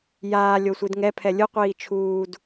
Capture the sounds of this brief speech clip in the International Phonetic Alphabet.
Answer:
jaː lʲosʷidŋɛpʰɛ lʲɯqʷiː t͡ʃʰuːd

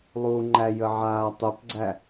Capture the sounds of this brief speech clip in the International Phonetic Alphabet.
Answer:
lˠuŋ͡ǃæjəʕaː tˤʊpɡ͡ǀæ

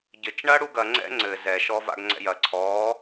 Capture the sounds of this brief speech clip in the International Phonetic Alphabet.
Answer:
ɟɘt͡ʃɳɐ ɽuɡɐ ŋ͡ǀɛ̰ŋ͡ǀɘ zɛʃɔ va̰ɡŋ͡ǀɛ̰jɐ ǀʰɔ

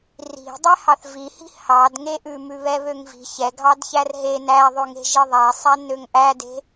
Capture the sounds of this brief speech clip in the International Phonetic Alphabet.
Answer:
ri̤ dˤehɑθvihi̤ hɑdŋeʔʉ mʉβɛβøŋvi̤ çɛɡʱɑd çærɦe næðˤøŋe̤ ʒiðˤæsˤæ nøŋʔæde̤

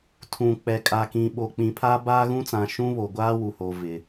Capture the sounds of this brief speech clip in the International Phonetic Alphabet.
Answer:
tʰũ˨k͡pɛ˨kʼa˨kĩ˨ ɓo˨k͡pĩ˨pʰaː˦ baː˦ɣũ˦t͡sã˨ ʃũ˦βo˨ɡʷaː˦ wu˨ho˨ vɪ˨

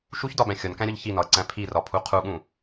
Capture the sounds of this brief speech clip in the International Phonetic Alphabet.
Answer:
ʃuçdɒbæ̃ xʲɒnkæ̃ɾʲɒʎ çinɒə̯ǀæ̃ pʰirɒpʰu qʰuɠũ

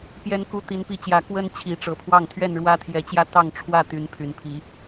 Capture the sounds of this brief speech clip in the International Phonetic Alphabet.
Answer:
pjɛ˦nku˦ t̪i˨˦npi˨˦t͡ɕjä˨˦ kwə˦n t͡ɕʰi˨˦ʈ͡ʂɤ˨˩pʰwɑ˥˨ŋ t̪ʰɥɛ˥˨nɻwä˦t̪ʰjɛ˨˦t͡ɕjä˦ t̪ɑ˥˨ŋʈ͡ʂʰwä˥˨ t̪y˨˦npʰy˨˩npʰi˨˦

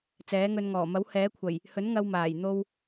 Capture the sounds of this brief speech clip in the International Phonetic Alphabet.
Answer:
t͡sɛː˨˥ŋɵ˧nŋɔː˨˩ mɐ˨˥whɛː˨˥kʷʰɐ˨˩j | hɵ˨˥n ŋɐ˧wmaː˨˩j n̪o˧w

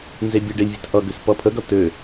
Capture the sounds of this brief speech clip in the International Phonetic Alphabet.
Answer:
nzebʲeɖelʲ vʲetʔʌɡøs pʌpʰəɡʌ tø

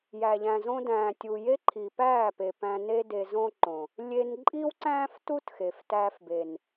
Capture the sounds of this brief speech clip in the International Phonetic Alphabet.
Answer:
jæ˨ʎæ̃˨zõ˧ dæ̃ː˨tʲu˨ je˦ǃʰi˨pæː˦˨pe˨ pæ̃˧ne˦ de˧zõ˦ǃõ˨ | lʲe˧nǃʼi˦wǀæ̃ː˦f tu˦txe˨f tæː˧fbe˨n

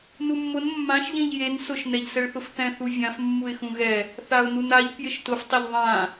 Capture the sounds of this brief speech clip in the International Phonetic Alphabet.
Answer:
numːʊn mːãʃʎɛ̃ʎ jen sʊʃ nɛʎsɛɭθʊfθɛ̃ θuvʲãf mːuɪ̯xũɣɛ | θaʊ̯nunaʎ pjɪʃtʊftˤɪʎ ðˤã

